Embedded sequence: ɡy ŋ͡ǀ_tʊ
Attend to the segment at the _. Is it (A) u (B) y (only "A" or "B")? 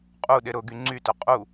B